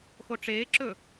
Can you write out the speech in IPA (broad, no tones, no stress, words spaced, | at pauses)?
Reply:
xoʈ͡ʂeː ǁɵ